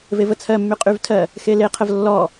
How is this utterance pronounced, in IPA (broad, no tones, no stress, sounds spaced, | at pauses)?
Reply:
v e v ə t͡sʰ ɜ mː y qʼ y v tʰ ɜ | x e l e qʰ ə v lː ɔ